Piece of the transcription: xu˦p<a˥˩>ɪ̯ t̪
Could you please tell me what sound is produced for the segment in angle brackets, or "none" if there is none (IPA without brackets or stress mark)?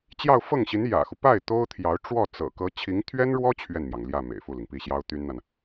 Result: a˥˩